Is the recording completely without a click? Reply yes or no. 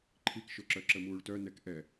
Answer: no